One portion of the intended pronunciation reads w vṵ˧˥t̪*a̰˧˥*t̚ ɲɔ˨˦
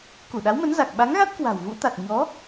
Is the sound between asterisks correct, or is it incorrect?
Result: incorrect